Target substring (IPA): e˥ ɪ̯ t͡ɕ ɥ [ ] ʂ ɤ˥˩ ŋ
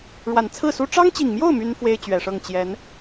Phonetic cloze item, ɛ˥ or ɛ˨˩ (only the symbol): ɛ˨˩